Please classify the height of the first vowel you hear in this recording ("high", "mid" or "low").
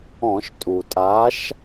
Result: mid